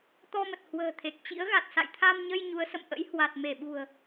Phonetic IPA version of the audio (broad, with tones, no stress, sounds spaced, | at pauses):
t̪ ɔ˧ m ə˨˩ t̚ h w ə̤ː˨˩ t̪ʰ e˨˩ k̚ t͡ɕ ḭ˧˥ ə̯ ɣ a˨˩ t̚ s a̰˧˨ j t̪ʰ a˧ m ɲ ə˧ j ɲ u˨˦ ə̯ s ə̰˧˨ m ʔ ə̰˧˥ j h w a˨˩ t̚ m e˧˩ ɓ ṳ˨˩ ə̯